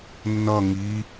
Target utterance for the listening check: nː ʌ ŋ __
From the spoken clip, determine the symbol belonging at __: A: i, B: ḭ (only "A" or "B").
A